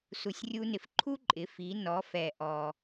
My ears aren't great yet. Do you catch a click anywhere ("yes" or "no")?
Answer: yes